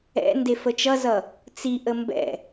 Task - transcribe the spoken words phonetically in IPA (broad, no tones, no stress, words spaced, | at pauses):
ɛ̰ ndefət͡ʃʌzʌ | t͡si ʔəmbɛ̰